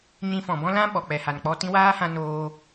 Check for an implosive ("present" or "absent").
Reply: present